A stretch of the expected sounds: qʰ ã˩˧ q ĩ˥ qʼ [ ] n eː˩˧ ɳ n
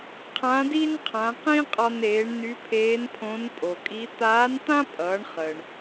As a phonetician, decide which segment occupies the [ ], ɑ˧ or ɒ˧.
ɒ˧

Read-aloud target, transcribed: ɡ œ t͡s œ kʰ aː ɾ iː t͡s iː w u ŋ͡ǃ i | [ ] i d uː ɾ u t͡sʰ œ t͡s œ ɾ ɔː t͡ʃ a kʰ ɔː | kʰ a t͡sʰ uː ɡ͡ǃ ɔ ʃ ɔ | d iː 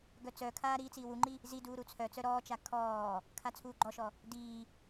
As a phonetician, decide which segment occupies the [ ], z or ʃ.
z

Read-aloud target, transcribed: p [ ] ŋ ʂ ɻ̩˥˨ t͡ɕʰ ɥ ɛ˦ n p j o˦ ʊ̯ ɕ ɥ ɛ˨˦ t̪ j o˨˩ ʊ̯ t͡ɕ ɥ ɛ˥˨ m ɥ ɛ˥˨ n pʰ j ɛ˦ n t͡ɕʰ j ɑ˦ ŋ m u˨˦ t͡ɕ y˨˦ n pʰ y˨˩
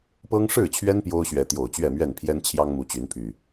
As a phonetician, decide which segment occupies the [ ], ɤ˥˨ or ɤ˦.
ɤ˦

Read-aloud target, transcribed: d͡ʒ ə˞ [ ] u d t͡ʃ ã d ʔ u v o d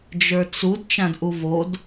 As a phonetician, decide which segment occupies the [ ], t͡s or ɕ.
t͡s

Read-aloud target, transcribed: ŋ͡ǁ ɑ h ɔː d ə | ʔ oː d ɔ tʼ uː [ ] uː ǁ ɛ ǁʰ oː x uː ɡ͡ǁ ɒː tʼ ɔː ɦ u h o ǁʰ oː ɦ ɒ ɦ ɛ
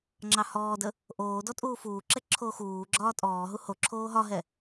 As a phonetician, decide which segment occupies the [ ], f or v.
f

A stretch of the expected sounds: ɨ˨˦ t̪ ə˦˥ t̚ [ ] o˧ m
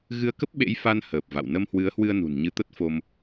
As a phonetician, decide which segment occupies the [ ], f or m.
f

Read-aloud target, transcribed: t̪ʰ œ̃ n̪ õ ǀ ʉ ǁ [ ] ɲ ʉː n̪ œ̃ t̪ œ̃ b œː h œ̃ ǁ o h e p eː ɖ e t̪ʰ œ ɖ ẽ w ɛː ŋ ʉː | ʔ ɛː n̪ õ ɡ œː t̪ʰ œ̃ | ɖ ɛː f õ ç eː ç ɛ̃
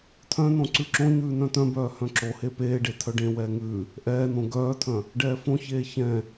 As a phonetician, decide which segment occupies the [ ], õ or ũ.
õ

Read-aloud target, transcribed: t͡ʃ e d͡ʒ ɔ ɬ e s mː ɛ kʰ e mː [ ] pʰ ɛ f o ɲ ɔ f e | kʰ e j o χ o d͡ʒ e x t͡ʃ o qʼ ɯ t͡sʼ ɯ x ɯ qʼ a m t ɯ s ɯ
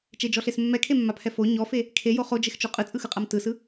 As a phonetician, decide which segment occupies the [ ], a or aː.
a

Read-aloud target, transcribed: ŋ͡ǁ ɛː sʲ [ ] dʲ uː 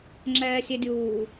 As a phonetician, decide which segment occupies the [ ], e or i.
e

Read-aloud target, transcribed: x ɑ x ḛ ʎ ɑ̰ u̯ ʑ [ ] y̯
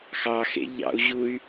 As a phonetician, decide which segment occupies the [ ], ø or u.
u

